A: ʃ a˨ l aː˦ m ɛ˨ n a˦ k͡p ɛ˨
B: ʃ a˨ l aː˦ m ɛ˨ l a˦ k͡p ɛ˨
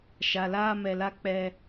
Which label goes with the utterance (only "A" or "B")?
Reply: B